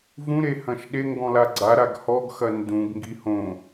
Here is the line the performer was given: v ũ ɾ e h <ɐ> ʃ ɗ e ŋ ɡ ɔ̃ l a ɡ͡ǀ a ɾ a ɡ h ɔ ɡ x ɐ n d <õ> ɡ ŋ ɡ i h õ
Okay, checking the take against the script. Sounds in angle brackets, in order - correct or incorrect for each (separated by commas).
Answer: incorrect, incorrect